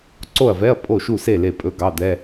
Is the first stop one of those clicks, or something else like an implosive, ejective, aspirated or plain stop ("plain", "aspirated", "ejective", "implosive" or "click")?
click